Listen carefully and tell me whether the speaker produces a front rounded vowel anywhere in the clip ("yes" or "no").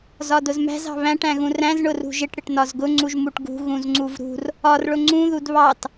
no